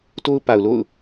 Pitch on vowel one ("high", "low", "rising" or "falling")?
high